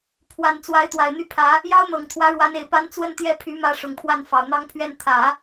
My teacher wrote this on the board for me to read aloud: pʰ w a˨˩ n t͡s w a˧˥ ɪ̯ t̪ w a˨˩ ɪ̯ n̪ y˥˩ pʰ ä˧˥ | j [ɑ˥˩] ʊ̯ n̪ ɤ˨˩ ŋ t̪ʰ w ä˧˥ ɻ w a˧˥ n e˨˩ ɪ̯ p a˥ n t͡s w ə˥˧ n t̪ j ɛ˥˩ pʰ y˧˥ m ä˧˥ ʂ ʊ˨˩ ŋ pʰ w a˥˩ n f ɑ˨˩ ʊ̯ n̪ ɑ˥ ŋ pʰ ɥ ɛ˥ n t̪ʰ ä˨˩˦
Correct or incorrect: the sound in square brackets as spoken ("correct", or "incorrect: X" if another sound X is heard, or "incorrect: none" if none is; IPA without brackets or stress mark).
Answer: incorrect: ɑ˥